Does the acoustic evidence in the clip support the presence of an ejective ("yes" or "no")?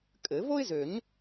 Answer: yes